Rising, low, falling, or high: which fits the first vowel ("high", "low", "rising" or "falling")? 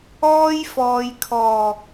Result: high